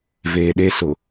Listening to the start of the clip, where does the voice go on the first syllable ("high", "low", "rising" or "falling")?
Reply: low